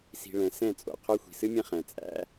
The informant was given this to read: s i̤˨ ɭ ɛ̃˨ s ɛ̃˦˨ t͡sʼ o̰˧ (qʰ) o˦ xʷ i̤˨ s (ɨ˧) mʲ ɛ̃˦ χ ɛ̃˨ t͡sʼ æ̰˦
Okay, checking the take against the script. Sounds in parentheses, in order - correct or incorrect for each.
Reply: correct, incorrect: ɨ˦

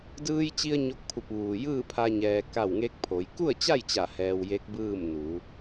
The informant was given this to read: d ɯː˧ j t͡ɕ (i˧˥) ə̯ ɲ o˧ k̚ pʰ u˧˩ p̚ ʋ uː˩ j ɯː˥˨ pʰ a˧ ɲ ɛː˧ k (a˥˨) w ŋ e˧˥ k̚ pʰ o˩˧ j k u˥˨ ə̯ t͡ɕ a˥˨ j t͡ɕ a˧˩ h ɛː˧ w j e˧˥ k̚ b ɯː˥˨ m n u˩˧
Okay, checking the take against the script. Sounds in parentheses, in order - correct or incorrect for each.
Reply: incorrect: i˧, correct

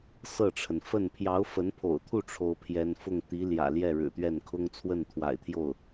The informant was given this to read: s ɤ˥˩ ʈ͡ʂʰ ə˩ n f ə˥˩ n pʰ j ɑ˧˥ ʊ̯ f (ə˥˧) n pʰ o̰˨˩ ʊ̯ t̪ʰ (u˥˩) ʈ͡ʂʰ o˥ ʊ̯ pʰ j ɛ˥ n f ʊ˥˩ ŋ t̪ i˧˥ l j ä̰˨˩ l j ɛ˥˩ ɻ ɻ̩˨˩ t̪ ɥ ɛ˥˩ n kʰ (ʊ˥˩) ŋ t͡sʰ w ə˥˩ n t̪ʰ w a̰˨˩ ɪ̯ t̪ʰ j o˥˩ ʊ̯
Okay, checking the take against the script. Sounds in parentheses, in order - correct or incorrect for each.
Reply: incorrect: ə˧˥, correct, incorrect: ʊ˥

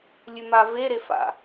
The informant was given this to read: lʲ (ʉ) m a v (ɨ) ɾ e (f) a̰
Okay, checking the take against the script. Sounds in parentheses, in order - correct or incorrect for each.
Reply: correct, incorrect: e, correct

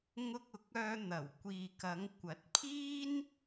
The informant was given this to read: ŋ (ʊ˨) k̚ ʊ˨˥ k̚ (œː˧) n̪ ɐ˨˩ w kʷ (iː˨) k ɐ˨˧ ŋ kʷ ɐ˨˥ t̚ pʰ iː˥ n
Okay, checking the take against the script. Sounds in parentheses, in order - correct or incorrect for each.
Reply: incorrect: ʊ˧, correct, correct

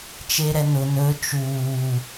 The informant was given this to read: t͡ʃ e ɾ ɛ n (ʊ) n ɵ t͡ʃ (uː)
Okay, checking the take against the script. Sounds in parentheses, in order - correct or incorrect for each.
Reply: correct, correct

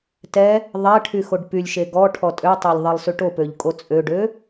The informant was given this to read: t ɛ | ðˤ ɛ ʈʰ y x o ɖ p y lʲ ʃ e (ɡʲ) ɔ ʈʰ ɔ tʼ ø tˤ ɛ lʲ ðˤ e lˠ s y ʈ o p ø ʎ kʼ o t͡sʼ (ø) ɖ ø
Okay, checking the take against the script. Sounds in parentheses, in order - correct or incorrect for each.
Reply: incorrect: ɡ, correct

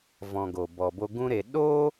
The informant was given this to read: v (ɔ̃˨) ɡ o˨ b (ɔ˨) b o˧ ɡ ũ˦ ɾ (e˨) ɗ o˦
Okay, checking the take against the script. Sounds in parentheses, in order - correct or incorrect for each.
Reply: correct, correct, correct

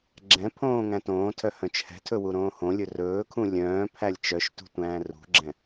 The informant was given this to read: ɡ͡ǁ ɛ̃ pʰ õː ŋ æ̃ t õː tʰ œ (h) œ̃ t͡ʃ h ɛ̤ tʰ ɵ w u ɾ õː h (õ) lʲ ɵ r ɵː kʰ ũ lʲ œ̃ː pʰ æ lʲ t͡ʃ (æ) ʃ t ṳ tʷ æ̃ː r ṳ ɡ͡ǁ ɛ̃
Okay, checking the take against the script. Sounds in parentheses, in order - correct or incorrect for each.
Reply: correct, correct, incorrect: œ

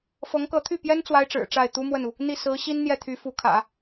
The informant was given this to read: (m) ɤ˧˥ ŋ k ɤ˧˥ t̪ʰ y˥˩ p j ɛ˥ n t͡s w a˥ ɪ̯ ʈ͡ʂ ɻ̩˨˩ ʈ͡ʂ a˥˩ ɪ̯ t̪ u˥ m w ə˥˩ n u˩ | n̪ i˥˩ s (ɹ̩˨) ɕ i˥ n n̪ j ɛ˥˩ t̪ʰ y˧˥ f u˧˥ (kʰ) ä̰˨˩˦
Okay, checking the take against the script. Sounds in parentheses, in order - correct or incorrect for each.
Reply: incorrect: f, incorrect: ɹ̩˧˥, correct

